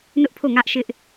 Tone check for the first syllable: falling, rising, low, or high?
high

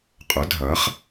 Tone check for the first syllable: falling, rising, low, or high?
rising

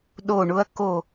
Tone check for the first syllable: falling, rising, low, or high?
falling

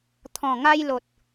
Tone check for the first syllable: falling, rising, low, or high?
low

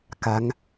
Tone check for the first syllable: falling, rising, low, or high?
rising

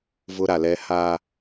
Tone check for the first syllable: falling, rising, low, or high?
high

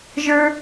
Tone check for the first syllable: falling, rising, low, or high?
high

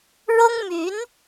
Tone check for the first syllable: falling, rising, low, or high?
high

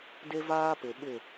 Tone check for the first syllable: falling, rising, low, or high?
high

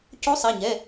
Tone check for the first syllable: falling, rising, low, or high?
rising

